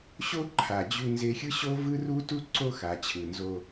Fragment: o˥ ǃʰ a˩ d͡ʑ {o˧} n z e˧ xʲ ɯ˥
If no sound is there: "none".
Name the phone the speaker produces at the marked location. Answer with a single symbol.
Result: u˧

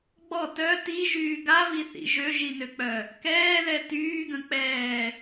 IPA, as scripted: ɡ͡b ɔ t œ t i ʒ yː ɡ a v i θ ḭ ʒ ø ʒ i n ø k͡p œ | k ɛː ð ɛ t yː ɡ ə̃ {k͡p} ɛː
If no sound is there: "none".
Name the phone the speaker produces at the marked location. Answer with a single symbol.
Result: k͡p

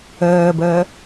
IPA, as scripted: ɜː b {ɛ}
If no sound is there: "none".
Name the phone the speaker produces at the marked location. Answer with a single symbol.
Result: ɜ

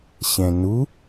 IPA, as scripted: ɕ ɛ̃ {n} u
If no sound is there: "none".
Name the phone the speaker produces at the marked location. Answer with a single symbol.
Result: n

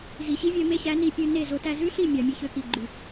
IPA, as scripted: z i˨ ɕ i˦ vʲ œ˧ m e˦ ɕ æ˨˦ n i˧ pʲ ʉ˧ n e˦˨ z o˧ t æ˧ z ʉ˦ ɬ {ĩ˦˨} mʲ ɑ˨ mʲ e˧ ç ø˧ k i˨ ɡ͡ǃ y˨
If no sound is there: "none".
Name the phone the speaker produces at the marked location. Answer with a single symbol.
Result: i˦˨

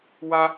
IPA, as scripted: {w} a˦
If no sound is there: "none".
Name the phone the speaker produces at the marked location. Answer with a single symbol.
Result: w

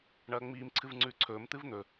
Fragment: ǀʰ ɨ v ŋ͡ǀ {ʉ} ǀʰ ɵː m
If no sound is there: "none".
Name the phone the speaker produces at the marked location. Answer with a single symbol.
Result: ʉː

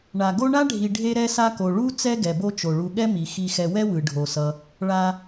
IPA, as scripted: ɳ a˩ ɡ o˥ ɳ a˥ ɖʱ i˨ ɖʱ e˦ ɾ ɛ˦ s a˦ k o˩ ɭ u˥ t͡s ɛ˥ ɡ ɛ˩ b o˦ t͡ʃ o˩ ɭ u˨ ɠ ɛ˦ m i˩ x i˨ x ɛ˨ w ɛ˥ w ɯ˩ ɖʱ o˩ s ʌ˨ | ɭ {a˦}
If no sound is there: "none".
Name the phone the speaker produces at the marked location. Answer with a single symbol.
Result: a˨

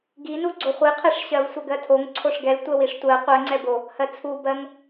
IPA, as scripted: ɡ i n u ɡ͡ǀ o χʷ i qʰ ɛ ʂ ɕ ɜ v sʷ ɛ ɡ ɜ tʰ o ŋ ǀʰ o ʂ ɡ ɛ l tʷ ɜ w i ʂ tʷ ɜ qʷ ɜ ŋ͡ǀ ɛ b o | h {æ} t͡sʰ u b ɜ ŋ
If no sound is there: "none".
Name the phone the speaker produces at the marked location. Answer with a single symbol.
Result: ɜ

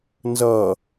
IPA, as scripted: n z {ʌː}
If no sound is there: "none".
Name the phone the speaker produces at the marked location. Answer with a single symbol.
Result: ʌː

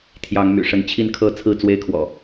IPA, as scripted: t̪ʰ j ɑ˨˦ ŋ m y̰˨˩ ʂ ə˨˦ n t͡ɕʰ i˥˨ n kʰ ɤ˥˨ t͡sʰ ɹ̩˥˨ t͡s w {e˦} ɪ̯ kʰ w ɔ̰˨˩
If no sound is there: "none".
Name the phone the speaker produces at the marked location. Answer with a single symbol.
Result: e˦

